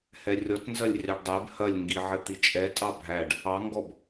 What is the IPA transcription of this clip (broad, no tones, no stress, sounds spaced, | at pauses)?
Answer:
h ɛ rʲ ɔ t n z ɐ lʲ rʲ ɑ ɖ dˤ ɛ b h ɐ lʲ ŋ ɡ i ʕ ɘ t̪ i t͡ʃʼ ɛ tʼ ɑ bʱ æ ɖ | ɑ ŋ ɡ ɔ b